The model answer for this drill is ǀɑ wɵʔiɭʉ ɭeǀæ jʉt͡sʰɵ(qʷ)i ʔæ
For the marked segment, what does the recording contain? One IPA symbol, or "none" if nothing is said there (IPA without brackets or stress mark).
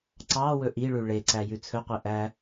qʷ